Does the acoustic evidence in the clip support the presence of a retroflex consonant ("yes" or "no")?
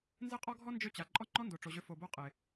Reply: yes